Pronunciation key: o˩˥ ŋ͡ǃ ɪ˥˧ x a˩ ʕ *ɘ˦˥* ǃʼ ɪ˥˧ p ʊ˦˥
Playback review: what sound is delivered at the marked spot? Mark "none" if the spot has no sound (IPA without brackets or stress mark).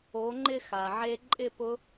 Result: e˦˥